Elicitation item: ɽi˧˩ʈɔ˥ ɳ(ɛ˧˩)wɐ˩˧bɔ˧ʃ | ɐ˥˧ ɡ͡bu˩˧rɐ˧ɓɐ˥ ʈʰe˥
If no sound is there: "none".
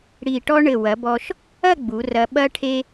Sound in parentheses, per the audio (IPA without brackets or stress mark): ɘ˧˩